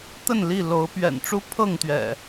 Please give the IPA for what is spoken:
t̪ə˥˨nli˥˨lo˨˦ʊ̯ pɥɛ̰˨˩nʈ͡ʂu˦ pʰɤ˥˨ŋt̪ɥɛ̰˨˩

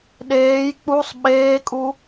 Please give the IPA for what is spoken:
ɗeːj k͡pusˤ ɓeːkʼu

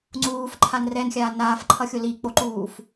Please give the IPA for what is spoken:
ŋ͡ǀuːfǃʰan rɛnxʲaː naːfǃʰʌxʲo lik͡poǃuːf

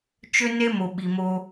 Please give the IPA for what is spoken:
t͡ʃø˦ne˦mo˨ ɓi˨mo˦

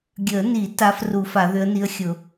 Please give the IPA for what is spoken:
ɡʲə˨˩˦ni˨˩˦ ta˧˥fru˨˩˦fa˨˩˦ ðʏ˧˥ə̯ni˧˥ə̯ xʲʊ˨˩˦

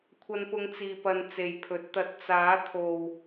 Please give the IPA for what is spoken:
kʷʰɐ˧npʊ˧ŋt͡siː˨pɐ˨n t͡se˨jpʰɵ˨˥t̚t̪ɐ˧t̚ t͡saː˨˥t̪ʰo˨w

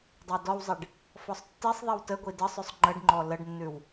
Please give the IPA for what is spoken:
dˤædɔwzˤiɖ | fɔsˤtːisˤðˤiw təɡʷi dəsˤʉsˤ ŋ͡ǃəɖŋ͡ǃɔ ləɖnːʉw

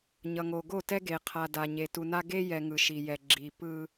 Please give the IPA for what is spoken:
ɲʌ˨ŋo˨ɡo˦˨tɛ˦ ɡe˨qʰa˨ da˨ɲe˨ tu˨na˦ ɡe˦jɛ˨ ŋɯ˨ʃi˨jɛ˨ ɡ͡ǁi˨ pɯ˦

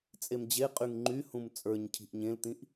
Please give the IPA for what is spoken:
t͡sʼemd͡ʑe qʼyŋŋ͡ǃyhũm t͡sʼə˞ɲcʰi̤ʔ ɲẽlt̪ĩʔ

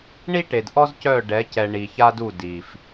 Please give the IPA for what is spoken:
ɳi˦ʈe˨dʔɔ˦z cœ˦˨ɖɛ˨˦cɛ˨ ɳi˨ça˦du˦˨ di˨f

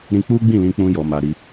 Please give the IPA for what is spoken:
ɾĩ˧k͡pu˦ɡ͡bĩ˦˨lĩ˧ k͡pũ˦jɔ˧ma˧ɾi˧

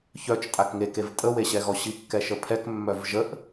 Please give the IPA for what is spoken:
çœt͡ʃ tʼakŋekev tʼəweɕɛɣɔ ɕikːɛʃəpʰɛk mːœvʒəʔ

